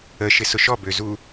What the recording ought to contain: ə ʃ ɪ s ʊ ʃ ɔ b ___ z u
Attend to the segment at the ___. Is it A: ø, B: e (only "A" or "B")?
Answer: A